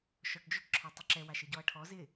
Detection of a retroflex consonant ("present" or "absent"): present